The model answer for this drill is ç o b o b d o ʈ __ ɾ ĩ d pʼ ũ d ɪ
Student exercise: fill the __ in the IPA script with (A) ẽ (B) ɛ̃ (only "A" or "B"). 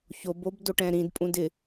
B